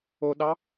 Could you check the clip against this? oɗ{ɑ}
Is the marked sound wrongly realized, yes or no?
no